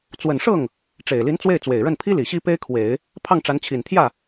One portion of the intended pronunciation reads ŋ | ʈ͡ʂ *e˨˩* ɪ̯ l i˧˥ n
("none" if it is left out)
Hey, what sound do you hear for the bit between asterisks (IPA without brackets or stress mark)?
e˨˩